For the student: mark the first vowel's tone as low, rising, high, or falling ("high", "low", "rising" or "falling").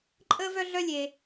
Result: high